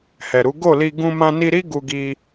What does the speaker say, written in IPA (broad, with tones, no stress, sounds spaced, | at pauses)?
h ɛ˨ ɾ u˨˦ ɡ o˦˨ l i˧ ɡ ũ˧ m ã˧ n i˧ ɾ i˦ ɡ u˧ ɡ i˧